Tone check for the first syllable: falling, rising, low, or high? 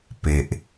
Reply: low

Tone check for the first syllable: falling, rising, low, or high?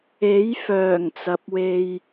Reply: rising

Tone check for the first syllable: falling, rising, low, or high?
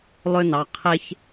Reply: high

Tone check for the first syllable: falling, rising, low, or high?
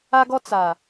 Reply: high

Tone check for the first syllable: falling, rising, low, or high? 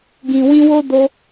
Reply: low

